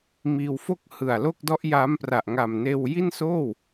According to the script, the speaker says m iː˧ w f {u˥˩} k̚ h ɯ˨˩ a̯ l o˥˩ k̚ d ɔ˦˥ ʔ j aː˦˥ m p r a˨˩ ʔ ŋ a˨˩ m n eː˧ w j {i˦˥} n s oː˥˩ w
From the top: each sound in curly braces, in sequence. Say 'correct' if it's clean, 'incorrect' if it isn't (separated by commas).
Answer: incorrect, incorrect